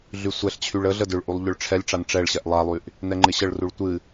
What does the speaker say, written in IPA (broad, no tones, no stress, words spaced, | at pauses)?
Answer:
ɮysʷɛɬt͡ɕʰyɭ əɮə dʏɭʔulˠ ʎʏɭʈ͡ʂʰɛlʲʈ͡ʂan ʈ͡ʂɛɭɕɛʔ lˠalˠyʔ | nɛŋ͡ǃɪɕəɭruɭ tʷɨ